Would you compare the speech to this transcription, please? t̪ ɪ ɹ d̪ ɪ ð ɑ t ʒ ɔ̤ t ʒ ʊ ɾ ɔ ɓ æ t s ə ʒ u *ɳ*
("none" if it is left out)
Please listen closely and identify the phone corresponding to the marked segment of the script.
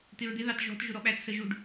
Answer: ɖ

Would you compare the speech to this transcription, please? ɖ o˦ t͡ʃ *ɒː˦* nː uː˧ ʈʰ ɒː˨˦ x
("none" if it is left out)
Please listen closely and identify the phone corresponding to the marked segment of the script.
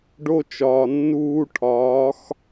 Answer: ɒː˨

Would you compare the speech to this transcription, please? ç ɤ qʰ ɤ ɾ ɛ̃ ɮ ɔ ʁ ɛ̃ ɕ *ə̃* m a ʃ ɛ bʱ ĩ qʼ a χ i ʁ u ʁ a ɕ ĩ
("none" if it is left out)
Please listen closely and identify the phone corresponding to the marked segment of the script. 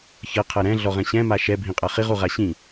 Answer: ɛ̃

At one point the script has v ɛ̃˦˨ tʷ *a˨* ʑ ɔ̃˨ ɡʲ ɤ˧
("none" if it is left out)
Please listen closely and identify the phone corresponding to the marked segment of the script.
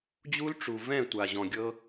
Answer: a˨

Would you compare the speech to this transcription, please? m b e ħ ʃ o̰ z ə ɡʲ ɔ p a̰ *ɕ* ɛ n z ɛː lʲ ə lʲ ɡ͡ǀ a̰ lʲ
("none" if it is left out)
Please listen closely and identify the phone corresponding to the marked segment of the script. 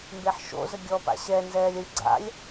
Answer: ɕ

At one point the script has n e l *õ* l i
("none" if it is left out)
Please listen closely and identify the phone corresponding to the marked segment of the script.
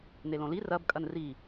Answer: õ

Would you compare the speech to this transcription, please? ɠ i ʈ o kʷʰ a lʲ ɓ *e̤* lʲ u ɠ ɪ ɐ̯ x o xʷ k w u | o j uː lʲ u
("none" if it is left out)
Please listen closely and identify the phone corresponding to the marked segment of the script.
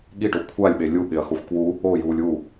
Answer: e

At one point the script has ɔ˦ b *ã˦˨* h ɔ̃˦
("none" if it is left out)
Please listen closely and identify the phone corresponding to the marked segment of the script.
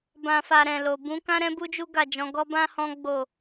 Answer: ã˦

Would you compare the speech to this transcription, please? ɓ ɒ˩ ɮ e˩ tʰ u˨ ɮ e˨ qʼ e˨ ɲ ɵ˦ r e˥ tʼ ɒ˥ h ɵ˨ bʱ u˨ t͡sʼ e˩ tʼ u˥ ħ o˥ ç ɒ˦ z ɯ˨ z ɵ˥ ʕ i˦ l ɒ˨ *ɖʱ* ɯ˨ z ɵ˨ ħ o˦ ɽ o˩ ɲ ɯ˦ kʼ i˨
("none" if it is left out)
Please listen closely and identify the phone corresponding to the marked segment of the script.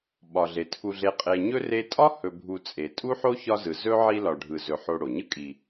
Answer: ɖʱ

